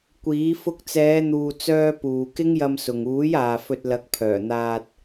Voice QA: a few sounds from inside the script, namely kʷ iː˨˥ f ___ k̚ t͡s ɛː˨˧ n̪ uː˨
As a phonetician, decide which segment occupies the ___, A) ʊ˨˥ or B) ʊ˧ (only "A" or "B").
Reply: B